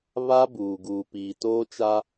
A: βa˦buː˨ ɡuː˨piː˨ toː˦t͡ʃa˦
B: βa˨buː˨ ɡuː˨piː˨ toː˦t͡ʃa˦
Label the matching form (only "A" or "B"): A